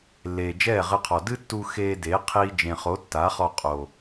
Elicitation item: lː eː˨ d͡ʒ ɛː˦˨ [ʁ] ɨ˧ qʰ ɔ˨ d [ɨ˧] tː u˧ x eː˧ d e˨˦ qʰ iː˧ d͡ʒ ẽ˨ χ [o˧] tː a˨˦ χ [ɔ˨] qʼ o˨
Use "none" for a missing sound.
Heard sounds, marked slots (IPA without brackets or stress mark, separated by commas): ʁ, ɨ˦, o˨˦, ɔ˧